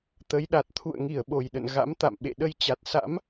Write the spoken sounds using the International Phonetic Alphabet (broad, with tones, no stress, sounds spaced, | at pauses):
t̪ ə˨˦ j ɗ a˨˩ t̚ t̪ʰ ṵ˧˨ ə̯ ŋ i˧˩ ə̯ ɓ o˨˩ j ɗ ə̰˧˨ n ɣ a̰˧˥ m t̪ a̰˧˨ m ɓ ḛ˧˨ ɗ ə˧ j t͡ɕ a˨˩ t̚ s a̰˧˥ m